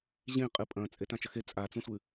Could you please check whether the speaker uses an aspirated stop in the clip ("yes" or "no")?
no